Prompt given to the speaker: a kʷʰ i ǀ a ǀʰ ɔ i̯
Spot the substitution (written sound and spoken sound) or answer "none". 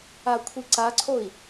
ɔ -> o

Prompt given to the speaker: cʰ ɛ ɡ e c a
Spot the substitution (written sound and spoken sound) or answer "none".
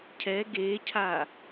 c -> cʰ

